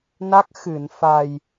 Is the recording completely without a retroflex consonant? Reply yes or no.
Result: yes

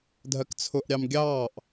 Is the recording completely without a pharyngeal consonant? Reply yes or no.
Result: yes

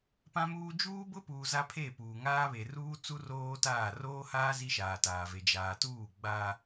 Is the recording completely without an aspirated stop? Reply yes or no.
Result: no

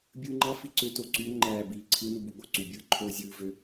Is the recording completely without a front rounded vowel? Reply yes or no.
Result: no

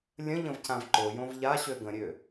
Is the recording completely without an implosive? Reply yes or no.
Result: yes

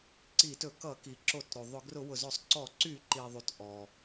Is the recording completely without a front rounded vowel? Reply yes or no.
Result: no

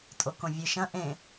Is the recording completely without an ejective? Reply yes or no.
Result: no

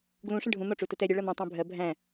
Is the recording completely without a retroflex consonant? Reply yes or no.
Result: no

